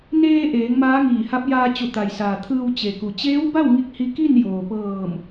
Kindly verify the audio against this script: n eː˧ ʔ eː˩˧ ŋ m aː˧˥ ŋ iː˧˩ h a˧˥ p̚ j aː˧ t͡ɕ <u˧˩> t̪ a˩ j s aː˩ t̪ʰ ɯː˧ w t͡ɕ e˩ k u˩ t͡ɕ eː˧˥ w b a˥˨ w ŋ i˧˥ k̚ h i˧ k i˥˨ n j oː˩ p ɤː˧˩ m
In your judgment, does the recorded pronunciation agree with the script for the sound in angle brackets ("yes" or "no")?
yes